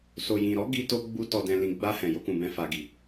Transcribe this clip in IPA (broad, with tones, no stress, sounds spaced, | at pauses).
s o˨ j ĩ˨ ɾ ɔ˨˦ ɡ i˧ t o˧ ɡ͡b u˧ t ɔ˧ d ɛ̃˧ l ĩ˧ ɡ͡b a˦ h ɛ̃˧ j o˦ k ũ˧ b ɛ̃˦ f a˧ ɡ i˧